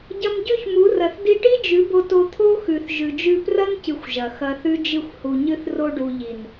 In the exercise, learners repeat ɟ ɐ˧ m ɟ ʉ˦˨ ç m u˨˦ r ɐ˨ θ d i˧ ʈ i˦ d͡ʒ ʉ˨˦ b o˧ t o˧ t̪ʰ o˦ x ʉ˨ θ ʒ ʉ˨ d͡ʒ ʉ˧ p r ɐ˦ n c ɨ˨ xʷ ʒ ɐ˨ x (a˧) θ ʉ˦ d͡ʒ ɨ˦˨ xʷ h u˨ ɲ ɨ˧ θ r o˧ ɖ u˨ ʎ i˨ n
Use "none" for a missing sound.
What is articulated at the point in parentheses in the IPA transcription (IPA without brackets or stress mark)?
ɐ˧